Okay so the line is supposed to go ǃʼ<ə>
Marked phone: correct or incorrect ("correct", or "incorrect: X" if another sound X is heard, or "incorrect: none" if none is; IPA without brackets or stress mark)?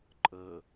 correct